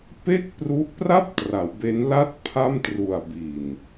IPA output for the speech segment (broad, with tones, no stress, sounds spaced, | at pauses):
p e˥˩ k̚ p r u˦˥ ʔ p r a˥˩ p̚ t r a˩˦ w b e˦˥ n l a˥˩ t̚ pʰ a˥˩ m t r u˨˩ a̯ b i˨˩ n